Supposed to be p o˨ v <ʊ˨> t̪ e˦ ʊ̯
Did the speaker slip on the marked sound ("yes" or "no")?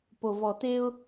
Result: yes